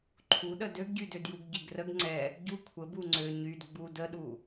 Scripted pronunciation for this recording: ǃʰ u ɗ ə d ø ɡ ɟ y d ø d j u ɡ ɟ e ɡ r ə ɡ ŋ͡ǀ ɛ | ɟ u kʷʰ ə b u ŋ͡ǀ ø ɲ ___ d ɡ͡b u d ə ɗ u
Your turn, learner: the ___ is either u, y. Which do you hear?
y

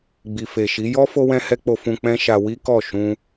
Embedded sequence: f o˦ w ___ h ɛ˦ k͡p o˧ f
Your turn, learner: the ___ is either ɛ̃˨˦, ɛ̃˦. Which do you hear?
ɛ̃˦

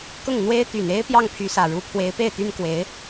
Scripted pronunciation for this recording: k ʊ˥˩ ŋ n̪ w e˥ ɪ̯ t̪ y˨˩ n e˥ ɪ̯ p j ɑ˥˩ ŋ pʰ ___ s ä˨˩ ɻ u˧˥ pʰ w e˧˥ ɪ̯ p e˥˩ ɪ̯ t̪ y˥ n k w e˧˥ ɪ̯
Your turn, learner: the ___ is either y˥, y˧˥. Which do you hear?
y˧˥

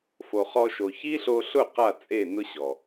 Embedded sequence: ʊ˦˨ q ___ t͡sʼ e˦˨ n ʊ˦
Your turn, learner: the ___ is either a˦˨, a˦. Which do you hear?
a˦˨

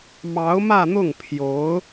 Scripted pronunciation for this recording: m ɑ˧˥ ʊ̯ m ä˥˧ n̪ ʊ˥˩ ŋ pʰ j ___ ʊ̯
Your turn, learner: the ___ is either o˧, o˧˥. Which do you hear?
o˧˥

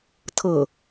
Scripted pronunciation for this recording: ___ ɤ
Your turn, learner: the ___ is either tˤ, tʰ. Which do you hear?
tʰ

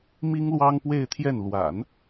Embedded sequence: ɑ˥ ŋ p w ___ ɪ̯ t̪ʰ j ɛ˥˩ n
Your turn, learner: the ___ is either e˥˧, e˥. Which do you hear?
e˥˧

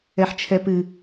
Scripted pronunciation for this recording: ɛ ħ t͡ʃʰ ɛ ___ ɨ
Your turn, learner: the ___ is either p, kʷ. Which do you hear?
p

